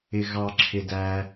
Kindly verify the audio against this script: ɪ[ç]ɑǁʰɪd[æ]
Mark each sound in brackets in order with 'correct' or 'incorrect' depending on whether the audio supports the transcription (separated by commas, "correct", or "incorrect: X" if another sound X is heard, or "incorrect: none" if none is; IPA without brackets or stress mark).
incorrect: ɣ, correct